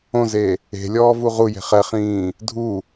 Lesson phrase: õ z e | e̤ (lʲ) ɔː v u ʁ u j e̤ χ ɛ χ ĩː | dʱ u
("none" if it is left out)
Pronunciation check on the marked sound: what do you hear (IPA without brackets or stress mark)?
lʲ